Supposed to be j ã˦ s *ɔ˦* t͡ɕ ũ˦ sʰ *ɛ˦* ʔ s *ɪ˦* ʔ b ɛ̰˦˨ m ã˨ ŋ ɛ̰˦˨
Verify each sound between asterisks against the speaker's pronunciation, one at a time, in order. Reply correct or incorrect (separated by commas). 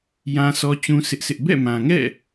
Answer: correct, incorrect, correct